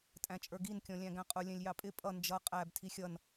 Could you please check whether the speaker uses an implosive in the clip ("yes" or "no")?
no